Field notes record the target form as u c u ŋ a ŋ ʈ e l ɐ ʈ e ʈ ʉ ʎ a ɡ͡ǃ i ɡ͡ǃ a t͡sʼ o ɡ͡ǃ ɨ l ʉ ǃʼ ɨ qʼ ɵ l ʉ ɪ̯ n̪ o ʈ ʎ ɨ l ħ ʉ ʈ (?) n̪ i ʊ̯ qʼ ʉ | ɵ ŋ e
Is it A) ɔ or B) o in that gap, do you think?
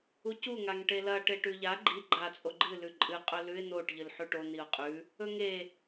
B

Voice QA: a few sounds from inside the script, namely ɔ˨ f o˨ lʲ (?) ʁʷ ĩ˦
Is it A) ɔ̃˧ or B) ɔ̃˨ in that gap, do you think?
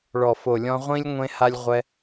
A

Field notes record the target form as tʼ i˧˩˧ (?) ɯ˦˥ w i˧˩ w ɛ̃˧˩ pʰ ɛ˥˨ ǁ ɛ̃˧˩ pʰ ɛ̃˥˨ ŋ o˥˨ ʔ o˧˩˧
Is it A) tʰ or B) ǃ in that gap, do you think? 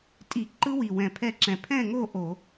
B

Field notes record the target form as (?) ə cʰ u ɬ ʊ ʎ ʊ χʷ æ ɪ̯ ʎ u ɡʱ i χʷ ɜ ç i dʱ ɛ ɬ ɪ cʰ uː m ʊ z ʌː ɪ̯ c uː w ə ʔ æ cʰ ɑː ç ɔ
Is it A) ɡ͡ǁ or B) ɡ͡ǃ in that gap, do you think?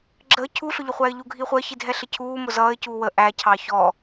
A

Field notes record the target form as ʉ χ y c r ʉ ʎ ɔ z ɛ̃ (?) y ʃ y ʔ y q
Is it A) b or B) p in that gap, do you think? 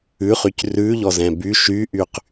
A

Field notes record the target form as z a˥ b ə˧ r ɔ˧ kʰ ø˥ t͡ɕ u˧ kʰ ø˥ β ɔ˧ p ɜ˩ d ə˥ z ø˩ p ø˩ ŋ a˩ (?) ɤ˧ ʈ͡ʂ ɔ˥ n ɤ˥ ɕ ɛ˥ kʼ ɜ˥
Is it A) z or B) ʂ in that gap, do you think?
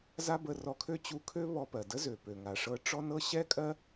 B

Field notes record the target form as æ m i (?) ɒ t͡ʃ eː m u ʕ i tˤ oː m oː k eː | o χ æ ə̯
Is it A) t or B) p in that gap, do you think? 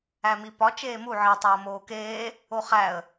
B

